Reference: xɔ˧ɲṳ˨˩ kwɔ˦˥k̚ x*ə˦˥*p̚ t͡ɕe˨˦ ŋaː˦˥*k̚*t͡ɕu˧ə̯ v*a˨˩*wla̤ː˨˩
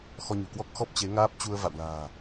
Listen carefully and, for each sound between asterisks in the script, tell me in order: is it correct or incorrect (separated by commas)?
incorrect, incorrect, incorrect